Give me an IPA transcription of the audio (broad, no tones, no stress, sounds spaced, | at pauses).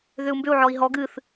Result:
ð ʏ u̯ m b ʏ u̯ ʕ ɔ i̯ ɦ ɔ ɡ ɨ θ